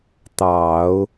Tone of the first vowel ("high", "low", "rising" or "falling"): low